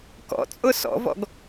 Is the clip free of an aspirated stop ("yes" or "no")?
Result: yes